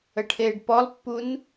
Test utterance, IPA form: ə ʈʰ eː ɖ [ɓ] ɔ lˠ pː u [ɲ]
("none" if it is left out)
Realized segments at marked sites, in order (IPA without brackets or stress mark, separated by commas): p, n